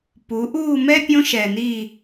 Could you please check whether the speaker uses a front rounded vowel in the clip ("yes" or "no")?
no